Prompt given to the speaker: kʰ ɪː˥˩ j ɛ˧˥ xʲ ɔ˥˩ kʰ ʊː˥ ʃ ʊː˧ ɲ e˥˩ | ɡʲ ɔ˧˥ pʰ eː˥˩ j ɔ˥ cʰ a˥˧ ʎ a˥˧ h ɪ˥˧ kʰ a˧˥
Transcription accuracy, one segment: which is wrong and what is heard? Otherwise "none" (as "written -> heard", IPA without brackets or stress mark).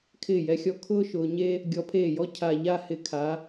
e˥˩ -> e˥